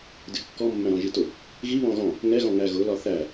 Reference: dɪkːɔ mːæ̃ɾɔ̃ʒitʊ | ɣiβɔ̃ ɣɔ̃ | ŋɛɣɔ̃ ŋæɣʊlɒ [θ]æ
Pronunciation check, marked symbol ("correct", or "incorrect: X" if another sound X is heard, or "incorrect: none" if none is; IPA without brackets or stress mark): correct